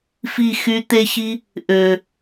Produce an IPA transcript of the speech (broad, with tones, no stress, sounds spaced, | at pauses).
f i˦˨ x y˧ t̪ e˦ ç i˦ | ʔ ø˨